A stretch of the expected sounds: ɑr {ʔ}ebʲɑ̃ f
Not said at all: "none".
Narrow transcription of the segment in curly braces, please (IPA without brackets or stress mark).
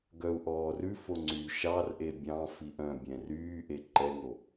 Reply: ʔ